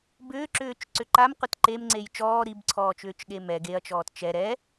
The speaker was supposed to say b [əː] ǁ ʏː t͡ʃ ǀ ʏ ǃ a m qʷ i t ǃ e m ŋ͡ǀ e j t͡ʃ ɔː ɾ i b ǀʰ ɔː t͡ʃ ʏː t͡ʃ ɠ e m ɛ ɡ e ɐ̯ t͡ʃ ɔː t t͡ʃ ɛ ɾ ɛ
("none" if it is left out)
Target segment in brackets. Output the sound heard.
ʏː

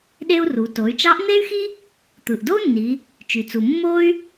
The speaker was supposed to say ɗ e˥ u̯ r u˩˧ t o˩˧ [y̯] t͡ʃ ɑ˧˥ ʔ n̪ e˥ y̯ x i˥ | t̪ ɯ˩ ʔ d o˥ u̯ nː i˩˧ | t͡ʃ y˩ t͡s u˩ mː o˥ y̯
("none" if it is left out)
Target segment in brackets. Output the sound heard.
y̯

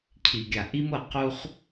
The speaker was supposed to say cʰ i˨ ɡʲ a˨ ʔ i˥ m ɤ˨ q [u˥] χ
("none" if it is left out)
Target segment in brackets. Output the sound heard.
u˥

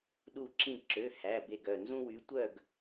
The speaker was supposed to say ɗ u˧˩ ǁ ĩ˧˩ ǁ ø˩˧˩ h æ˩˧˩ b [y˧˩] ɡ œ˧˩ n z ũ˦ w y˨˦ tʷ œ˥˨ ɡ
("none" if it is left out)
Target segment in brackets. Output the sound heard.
e˧˩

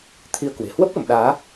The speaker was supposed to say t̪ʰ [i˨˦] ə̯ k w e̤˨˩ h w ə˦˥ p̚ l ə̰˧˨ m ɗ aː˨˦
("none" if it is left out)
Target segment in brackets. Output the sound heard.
i˧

